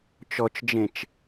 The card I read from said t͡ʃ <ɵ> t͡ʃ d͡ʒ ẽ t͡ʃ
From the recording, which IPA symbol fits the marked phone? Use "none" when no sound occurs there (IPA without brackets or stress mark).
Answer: ɔ